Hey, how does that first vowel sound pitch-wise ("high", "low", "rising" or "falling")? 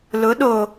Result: rising